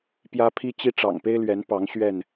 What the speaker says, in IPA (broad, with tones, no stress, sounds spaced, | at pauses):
p j ä˦ pʰ i˦ t͡ɕ i˦ ʈ͡ʂ ɑ̰˨˩ ŋ p e˦ ɪ̯ l ɥ ɛ˨˦ n p ɑ˨˦ ŋ ɕ ɥ ɛ˥˨ n